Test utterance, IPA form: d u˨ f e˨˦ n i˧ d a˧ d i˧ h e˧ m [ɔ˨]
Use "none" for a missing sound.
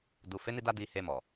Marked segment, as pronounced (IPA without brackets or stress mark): ɔ˨